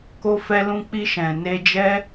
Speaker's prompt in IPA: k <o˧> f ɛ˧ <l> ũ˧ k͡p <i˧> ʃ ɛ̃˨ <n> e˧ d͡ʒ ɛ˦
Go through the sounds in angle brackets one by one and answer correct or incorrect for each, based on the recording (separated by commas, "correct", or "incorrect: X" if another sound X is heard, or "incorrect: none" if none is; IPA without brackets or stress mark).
correct, correct, correct, correct